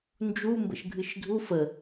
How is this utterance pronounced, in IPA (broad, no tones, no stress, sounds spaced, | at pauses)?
n d͡ʒ u m b ə̰ ʃ ɡʱ ɨ ʃ dʱ u f ə